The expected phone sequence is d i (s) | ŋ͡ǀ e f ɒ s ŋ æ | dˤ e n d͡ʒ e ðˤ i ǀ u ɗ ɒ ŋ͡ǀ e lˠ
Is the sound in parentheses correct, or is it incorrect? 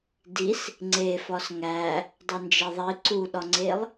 correct